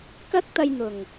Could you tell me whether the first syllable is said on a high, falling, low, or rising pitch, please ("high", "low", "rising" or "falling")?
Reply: high